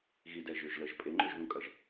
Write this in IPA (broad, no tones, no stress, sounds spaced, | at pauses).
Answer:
ɣ i d ɛ ʒ ø ʒ l ə ʒ pʼ e ŋ͡ǃ ø ʒ ð ũ kʼ ɐ ʒ